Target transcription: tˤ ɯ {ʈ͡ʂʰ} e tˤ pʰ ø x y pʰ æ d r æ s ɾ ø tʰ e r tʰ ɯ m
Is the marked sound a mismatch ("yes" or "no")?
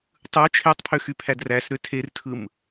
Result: yes